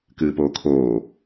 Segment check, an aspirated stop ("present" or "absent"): present